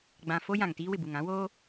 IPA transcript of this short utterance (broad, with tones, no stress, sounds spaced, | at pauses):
ɡ͡b ã˨ f o˦ j ã˨ ŋ t iː˦ w ɪ˨ b u˨ ŋ ã˦ w oː˦